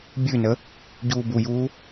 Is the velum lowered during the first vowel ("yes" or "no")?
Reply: no